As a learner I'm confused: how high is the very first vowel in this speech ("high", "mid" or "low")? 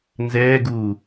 mid